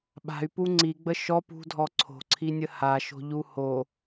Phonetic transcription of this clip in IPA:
ɓ a̤ y̯ p u ŋ͡ǀ i ɡ͡b ə ʃ ɔ p ṳ dʱ ɔ ǀʰ o̤ ǀʰ i nʲ ə h a ʃ o̤ ʎ u h o

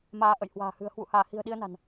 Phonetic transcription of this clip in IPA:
m aː˨˦ ʔ ə̰˧˨ j h w a̤ː˨˩ h ɨ̤˨˩ ə̯ h w ṵ˧˨ h aː˧˩ h i̤˨˩ ə̯ ɗ i˧ ə̯ n a̤˨˩ n

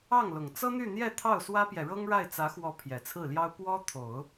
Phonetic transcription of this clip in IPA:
ɑ˥˩ ŋ l ʊ˨˩ ŋ t͡s ɤ˥ n̪ y˥˧ n̪ j ɛ˥˧ t̪ʰ ɑ˥˩ ʊ̯ s w ä˥ p j ɛ˨ ɻ ɤ˥ ŋ ɻ a˥˩ ɪ̯ t͡s ä˧˥ x w ɔ˧˥ pʰ j ɛ˨˩ t͡sʰ ɹ̩˥˩ l j ɑ˥ ʊ̯ p w ɔ˥ t̪ʰ o˨˩˦ ʊ̯

